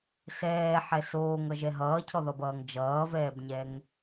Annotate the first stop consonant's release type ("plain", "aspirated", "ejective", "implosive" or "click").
aspirated